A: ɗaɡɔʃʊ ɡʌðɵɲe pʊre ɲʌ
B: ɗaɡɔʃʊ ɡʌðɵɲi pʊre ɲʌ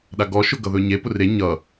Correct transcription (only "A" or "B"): A